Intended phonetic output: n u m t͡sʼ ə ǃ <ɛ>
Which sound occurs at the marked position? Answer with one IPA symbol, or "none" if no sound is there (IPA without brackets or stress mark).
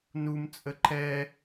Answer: ɛ